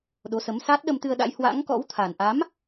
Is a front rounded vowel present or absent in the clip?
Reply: absent